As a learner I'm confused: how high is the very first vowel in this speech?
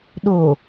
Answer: mid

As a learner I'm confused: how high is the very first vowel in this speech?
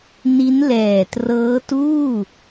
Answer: high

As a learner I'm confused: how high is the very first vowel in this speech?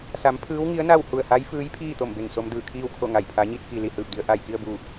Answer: low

